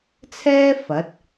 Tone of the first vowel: high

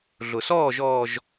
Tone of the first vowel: low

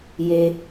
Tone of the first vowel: low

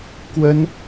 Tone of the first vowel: high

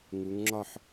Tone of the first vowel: rising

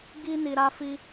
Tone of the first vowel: high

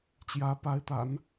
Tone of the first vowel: rising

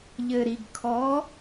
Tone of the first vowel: low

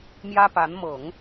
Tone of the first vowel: high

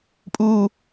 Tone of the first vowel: high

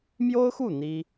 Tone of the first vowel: high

